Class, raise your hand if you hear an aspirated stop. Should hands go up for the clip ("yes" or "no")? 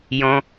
no